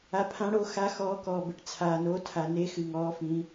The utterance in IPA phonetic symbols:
a˨pʰã˨˥ɽo˨˥xa˨˥ xɔː˨˥kɔː˨bɘ˨ʈ t͡sʰaː˨no˨˥ tʰa˨ne˨˥xɨ˨ ŋɔː˨˥fĩ˨˥

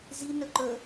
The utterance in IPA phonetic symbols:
zinɵ ǃɵ

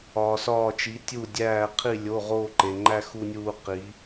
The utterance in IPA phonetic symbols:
ɒː˧sɒː˥˧t͡ʃi˧˥ tʲu˥˧ dʲæː˥˧ qʰi˥˧ lʲo˧˥˧ ʁoː˥˧ǃe˧ŋ͡ǃæ˥ xu˥nʲuː˥ qi˧˥

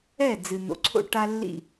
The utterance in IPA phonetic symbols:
ɛ˥˩ d͡zɨ˩ n̪o̰˩˥ǀʰo̰˥ ʈa˥lːḭ˥˩

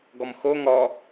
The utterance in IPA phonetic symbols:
ɡɔmxo ŋɔ

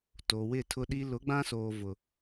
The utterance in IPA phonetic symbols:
to˨wɪ˦˨tʰʊ˦ɗi˦ lʊ˨˦ɡ͡bã˦soː˨ vʊ˨

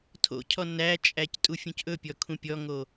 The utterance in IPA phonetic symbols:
tʰo̰cʰɔ næt͡ʃʼæc tʼufʲũcʔɵpʲɔ kʰũpʲɔŋo

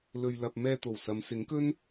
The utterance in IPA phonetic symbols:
lɵ˨ɥ lɐ˨p̚ mɛː˧t̪o˨˩w sɐ˨˧msɪ˨˥ŋkɵ˥n

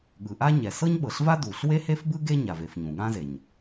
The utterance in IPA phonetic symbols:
ɠɯ˩ʔa˥ ɲɛ˩sɤ˥ɲɓɤ˩ɬva˥ du˩ɬ we˥he˥fbɯ˥ ɡe˥ ɲa˩ve˩f ɲũ˩ɠã˥ze˩ɲ

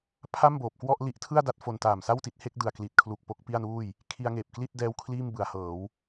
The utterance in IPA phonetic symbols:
pʰa˥˩mboː˨˩p̚kwɔ˥˩ʔ li˦˥ʔtʰɯ˥˩a̯da˦˥t̚ fo˧ntaː˨˩m sa˥˩wti˦˥t̚ he˦˥k̚dɯ˨˩a̯kli˨˩t̚kʰlu˨˩k̚ po˥˩k̚pi˥˩a̯nuː˥˩j | kʰi˧a̯ ŋeː˨˩p̚ kli˥˩t̚dɛː˦˥w kʰliː˥˩mbɯ˩˦a̯hɤː˩˦w

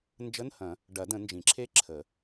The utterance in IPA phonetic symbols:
nd͡ʒə˧˥˧nhɐ̃˨˩˦ | ɖɐ˨˩˦də̃˨˩˦ nd͡ʒĩ˨˩˦ǁʰe˥˧ǁʰə˨˩˦

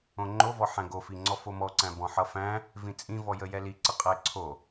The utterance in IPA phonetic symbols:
õŋ͡ǃovɔ ħæ̃ɡofi ŋ͡ǀɔfomɔǀæ̃ bɔ̃ħʌfæ̃ | vĩt͡sʼĩvɔjə jɛliǀə qʼəɪ̯ǀʰo

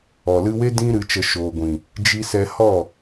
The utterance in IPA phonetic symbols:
ɔ˨lɨ˧we˦ dĩ˦ ɾɨ˧t͡ʃə˧ ʃoː˨ɡʷĩ˨ | d͡ʒi˧sɛ˧hɔ˦˨

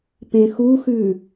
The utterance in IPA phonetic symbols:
pẽxuxʉ

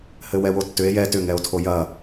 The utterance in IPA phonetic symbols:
hɘwɛwotːʏe̯ jɛ tʏŋɛo̯tʰo jɐ

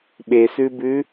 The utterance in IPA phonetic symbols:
ɓesʉbʉ

